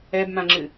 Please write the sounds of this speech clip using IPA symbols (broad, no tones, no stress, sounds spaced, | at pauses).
ɛ b m ã ŋ͡ǁ ɨ